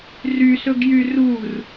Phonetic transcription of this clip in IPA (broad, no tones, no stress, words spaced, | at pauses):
rysɵɡjy rur